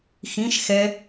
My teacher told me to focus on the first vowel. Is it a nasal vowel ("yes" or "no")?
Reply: yes